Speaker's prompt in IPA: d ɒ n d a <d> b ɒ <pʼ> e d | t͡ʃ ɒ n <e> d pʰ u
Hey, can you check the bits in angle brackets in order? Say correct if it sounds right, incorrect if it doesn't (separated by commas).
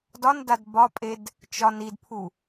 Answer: correct, correct, incorrect